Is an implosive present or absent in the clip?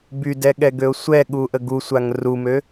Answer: present